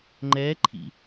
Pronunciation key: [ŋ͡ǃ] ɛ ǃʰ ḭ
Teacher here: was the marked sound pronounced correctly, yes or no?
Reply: yes